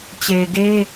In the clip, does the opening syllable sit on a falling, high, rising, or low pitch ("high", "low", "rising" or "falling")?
low